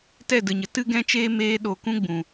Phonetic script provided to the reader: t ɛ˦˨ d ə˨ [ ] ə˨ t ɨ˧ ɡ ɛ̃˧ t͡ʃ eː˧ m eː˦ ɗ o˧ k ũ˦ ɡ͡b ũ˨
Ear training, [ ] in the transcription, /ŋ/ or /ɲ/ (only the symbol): ɲ